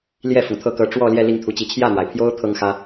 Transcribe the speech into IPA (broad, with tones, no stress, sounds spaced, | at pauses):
l j ɛ˥˩ f ʊ˩ ŋ t̪ʰ ɤ˥˩ k ɤ˧˥ ʈ͡ʂ w ɔ˥˧ l j ɛ˥˧ l i˥˩ ŋ t̪ʰ u˧˥ t͡ɕ i˧˥ t͡ɕʰ j ä˥˩ n̪ w a˩ ɪ̯ pʰ j o˥ ʊ̯ t̪ʰ ɤ˥ ŋ x ä˥